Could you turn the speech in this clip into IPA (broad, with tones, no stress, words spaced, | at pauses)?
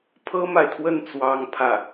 pʰɤ˥ma˨ɪ̯t̪ʰwə˥˩n t͡swɑ˥ŋ pʰä˥˩